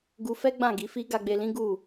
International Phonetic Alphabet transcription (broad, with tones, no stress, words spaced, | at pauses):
ɡu˧fɛ˦ ɡ͡bã˦˨ ɡi˨˦fi˦ ɡa˧ɡ͡be˧lĩ˦ ɡu˦˨